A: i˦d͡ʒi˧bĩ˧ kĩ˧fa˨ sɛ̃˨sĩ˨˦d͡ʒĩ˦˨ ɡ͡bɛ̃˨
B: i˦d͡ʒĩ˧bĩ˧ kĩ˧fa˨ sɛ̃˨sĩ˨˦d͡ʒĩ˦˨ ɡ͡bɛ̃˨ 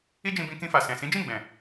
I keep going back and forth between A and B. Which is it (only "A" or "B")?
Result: B